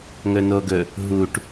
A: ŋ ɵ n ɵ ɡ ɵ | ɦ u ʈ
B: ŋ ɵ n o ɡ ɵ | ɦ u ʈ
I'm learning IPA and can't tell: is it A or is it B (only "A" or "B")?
B